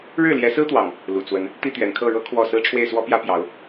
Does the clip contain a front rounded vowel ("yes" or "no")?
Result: no